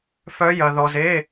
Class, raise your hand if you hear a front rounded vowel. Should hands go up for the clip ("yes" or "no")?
yes